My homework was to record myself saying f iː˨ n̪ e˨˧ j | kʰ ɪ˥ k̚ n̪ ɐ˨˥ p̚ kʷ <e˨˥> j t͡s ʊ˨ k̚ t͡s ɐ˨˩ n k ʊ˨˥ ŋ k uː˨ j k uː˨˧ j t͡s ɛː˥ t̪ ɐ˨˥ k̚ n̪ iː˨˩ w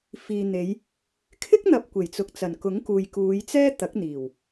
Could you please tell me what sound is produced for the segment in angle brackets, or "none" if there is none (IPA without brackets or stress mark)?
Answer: e˨˩